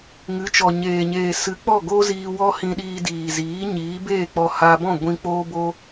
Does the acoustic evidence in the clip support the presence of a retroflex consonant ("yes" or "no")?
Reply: no